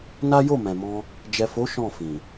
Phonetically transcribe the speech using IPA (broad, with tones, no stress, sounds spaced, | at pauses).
n a˦ j o˦˨ m ɛ̃˨ m ɔ̃˧ | d͡ʒ ɛ˨ f o˨˦ ʃ ɔ̃˦˨ f ĩ˨